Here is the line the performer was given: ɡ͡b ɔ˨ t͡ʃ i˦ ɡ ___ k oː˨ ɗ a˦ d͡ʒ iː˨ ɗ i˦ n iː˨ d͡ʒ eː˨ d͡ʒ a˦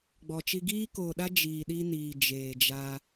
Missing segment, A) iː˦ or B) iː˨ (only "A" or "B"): A